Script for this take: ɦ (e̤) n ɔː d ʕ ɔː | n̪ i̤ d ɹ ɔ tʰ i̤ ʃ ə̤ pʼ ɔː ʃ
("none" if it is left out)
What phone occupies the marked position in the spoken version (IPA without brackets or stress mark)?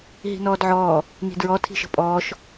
i̤